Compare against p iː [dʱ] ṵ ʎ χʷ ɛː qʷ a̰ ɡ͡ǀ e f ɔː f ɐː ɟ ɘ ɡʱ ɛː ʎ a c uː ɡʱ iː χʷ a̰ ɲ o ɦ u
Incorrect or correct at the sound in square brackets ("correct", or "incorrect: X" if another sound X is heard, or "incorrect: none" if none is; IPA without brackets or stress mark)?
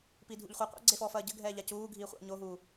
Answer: correct